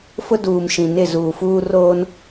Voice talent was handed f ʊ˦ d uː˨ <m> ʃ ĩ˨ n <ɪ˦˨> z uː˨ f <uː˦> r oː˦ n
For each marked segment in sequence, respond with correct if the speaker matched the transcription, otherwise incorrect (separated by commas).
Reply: correct, correct, correct